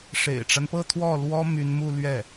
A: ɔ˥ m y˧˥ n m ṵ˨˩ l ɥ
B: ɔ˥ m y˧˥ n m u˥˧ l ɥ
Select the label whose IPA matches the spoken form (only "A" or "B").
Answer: B